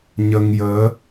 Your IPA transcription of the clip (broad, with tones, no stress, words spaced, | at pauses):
ɲə˧ŋjəː˧˥